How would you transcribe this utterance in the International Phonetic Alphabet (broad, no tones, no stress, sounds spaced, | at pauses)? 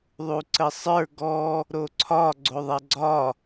ðˤ u ǀ ə sˤ ə˞ ɡ ɔ | ɾ o ǀʰ ɒ ɡ͡ǀ o ðˤ ɛ ɡ͡ǀ ɒ